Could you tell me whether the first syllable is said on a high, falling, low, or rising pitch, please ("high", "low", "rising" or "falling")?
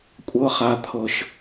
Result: high